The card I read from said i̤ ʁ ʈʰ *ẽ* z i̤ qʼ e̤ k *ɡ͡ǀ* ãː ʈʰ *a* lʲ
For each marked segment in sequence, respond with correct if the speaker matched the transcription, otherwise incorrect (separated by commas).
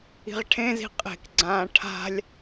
correct, correct, incorrect